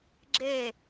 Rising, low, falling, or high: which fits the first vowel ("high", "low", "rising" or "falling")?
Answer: falling